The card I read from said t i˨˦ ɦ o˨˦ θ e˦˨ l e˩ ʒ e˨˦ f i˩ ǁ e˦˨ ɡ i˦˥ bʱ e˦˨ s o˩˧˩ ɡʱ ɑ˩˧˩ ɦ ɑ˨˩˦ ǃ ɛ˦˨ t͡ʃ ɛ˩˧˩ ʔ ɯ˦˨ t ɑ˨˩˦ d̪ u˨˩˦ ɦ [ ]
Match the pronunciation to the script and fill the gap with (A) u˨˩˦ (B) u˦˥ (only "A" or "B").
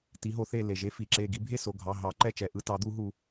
A